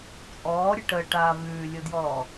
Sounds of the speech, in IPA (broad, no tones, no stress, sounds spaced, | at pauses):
t͡sʼ ɔː ɾʲ ɨ ʈ ə ʈ aː v ʉː lʲ o d j ɔː